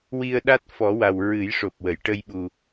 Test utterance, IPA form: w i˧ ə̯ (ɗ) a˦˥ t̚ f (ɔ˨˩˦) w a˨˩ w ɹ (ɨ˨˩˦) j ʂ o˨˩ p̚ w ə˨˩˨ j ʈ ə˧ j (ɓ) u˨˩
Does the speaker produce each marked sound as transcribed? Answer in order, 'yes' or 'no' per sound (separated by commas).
yes, yes, yes, yes